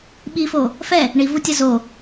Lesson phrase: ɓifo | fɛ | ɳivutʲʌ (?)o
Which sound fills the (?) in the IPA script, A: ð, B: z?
B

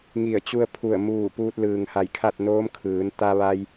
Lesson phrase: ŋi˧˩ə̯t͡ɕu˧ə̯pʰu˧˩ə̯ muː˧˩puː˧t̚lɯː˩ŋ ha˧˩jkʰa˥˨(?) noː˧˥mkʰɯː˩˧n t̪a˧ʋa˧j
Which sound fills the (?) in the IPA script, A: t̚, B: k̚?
A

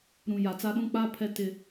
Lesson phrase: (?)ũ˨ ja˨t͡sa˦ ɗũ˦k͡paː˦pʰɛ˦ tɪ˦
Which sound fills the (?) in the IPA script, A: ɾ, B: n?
A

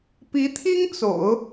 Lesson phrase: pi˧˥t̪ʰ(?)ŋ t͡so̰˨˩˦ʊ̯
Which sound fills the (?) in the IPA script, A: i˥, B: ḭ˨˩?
A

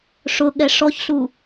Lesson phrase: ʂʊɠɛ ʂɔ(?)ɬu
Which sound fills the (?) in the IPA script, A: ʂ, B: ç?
B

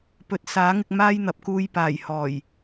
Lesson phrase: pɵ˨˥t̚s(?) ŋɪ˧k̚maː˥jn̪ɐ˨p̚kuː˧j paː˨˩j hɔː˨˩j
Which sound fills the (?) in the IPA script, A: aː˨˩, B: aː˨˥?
B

